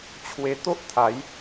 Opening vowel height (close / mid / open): mid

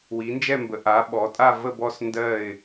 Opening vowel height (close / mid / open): close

